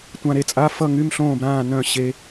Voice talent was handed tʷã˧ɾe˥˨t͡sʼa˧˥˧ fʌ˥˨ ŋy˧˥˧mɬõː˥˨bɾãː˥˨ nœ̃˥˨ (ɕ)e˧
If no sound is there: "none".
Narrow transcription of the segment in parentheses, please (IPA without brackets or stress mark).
ɕ